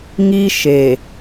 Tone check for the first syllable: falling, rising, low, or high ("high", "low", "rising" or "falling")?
high